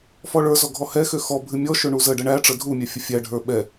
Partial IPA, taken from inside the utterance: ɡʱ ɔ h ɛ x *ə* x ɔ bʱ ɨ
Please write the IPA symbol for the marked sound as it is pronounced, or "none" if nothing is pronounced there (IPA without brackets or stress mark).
ø